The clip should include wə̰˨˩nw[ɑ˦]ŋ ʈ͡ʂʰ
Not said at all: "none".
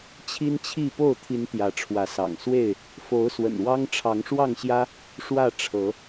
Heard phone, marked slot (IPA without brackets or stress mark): ɑ˦